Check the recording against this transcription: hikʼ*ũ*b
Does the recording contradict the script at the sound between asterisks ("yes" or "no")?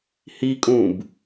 no